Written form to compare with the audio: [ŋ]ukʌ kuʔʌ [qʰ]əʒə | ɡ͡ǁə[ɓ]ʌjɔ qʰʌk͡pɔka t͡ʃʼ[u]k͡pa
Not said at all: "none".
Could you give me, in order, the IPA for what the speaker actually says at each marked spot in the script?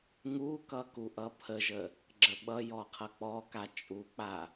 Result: ŋ, pʰ, ɓ, u

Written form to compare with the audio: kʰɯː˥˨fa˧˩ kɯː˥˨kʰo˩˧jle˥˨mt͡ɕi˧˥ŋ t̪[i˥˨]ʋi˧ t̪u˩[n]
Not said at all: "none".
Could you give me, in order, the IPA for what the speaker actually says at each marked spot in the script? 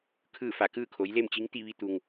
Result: i˥˨, ŋ

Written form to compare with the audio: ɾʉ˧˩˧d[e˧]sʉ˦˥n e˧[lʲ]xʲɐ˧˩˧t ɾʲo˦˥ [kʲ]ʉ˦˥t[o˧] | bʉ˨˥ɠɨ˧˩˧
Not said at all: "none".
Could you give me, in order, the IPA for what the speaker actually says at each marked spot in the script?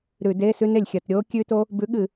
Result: e˧˥˧, lʲ, kʲ, o˦˥

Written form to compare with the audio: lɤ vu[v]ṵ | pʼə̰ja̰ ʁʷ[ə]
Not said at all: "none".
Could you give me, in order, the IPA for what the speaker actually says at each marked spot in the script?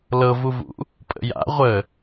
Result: v, ə

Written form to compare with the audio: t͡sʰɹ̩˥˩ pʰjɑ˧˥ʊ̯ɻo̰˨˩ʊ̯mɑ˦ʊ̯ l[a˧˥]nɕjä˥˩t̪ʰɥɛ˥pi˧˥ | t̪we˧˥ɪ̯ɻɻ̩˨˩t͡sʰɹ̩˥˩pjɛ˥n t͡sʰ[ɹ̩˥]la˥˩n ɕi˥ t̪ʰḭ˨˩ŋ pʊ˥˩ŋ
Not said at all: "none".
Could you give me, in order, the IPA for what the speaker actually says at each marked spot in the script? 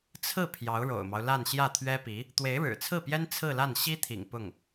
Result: a˥˧, ɹ̩˥˧

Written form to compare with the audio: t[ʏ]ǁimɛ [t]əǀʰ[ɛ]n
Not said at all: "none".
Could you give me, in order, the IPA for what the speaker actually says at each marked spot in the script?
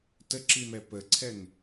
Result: ə, p, ɛ

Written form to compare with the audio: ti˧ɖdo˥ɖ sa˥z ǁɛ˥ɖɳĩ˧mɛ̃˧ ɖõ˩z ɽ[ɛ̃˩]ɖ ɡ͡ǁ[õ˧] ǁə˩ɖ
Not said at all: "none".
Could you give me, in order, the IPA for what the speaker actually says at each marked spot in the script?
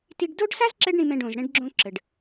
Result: ɛ̃˧, õ˧

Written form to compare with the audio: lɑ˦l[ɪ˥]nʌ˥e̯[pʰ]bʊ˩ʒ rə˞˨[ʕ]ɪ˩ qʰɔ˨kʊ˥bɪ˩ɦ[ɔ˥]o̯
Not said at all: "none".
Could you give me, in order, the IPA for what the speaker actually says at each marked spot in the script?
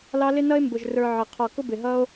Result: ɪ˥, m, ʕ, ʌ˥

